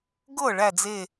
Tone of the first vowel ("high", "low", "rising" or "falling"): falling